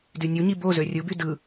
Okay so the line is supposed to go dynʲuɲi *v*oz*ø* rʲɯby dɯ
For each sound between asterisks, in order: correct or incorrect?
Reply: incorrect, correct

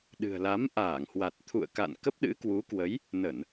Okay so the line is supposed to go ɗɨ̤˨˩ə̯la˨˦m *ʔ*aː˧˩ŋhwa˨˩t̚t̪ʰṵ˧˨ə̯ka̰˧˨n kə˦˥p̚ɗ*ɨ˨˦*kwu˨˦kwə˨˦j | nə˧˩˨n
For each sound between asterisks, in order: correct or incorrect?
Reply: correct, incorrect

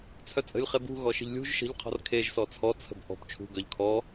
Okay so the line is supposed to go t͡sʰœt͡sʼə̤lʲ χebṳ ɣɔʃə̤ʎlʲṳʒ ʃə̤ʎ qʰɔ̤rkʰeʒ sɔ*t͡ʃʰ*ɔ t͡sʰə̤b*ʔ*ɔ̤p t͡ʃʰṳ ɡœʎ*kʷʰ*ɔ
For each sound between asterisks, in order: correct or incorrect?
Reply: incorrect, correct, incorrect

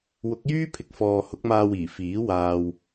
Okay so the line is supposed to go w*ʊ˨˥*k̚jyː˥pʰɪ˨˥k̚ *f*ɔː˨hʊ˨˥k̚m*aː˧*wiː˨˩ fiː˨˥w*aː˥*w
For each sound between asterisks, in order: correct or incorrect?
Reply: correct, correct, correct, incorrect

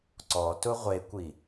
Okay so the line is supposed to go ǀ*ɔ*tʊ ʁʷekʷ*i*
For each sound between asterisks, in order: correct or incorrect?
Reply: correct, correct

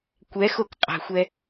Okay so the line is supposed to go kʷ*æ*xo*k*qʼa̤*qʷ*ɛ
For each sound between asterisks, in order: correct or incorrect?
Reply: incorrect, correct, incorrect

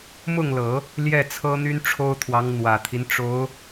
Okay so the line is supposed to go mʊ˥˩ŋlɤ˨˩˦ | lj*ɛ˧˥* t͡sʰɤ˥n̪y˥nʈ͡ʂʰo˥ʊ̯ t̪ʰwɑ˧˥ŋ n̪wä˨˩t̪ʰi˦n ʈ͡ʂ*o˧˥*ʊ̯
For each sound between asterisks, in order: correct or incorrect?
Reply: incorrect, correct

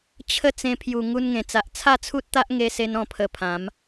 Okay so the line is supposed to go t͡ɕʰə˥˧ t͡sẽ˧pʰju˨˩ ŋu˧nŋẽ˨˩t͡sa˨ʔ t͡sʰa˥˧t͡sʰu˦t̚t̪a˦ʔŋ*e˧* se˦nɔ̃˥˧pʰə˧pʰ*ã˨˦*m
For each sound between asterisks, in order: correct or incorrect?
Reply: correct, correct

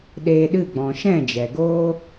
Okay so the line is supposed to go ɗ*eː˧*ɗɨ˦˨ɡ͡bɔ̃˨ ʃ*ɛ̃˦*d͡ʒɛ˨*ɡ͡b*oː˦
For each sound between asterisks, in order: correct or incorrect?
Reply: correct, incorrect, incorrect

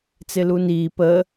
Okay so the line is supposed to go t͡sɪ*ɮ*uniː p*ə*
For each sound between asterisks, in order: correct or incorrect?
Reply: incorrect, correct

